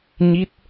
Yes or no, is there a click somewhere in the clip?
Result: no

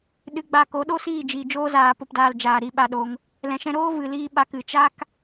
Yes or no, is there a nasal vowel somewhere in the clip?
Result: yes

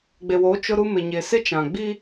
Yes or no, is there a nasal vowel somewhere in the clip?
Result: yes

